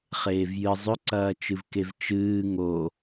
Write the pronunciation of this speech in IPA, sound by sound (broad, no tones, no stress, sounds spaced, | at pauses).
χ eː v j ɨ zˤ ɵ ǀ ɐː t͡ʃ ɨ v k e v t͡ʃ ɨː ŋ o